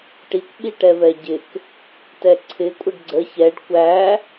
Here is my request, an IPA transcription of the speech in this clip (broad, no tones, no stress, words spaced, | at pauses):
ʈikʷ ɓiʈɛvɛɟɪk | tɛǀʰɪ kʷʼəɖɡ͡ǀə çɛɖ kʷæ